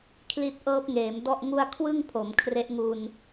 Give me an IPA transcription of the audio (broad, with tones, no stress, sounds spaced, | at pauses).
kʰ l i˦˥ t̚ ʔ ɤː˦˥ p̚ ŋ eː˩˦ m d ɔ˥˩ ʔ ŋ u˥˩ a̯ kʰ w ɯ˥˩ ŋ pʰ o˩˦ m kʰ r e˦˥ ʔ ŋ u˧ n